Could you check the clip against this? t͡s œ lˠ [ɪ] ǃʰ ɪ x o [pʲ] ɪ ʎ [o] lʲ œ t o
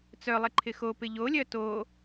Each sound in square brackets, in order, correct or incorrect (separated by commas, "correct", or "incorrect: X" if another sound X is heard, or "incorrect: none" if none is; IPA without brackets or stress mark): correct, incorrect: p, correct